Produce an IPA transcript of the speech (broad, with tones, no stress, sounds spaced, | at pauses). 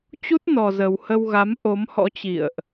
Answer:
t͡ɕ u˦˥ t̚ n ɔ˨˩ z ə˨˩ w h ə˧ w ɣ a˨˦ m ʔ o˨˦ m h ɔ̰˧˥ t͡ɕ ḭ˧˨ ə̯ ʔ